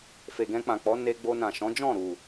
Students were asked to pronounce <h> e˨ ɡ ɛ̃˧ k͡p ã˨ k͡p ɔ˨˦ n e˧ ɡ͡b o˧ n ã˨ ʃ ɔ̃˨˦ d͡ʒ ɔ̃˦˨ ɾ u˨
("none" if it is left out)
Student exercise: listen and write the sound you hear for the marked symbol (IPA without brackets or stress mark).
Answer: f